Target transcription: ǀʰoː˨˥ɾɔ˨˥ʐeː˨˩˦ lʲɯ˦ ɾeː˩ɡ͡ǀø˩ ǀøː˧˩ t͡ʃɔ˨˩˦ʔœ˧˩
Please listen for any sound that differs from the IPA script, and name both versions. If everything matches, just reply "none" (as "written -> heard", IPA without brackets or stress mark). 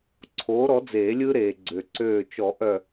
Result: ʐ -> d͡z